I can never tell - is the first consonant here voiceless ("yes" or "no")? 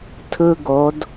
yes